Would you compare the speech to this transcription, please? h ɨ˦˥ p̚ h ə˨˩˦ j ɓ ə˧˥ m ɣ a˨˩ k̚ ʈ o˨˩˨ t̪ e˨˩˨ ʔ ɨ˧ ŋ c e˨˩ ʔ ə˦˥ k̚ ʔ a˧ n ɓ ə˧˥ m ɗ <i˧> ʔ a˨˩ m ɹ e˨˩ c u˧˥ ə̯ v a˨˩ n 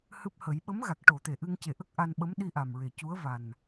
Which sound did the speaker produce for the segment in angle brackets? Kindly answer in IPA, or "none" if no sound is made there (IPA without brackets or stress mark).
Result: i˧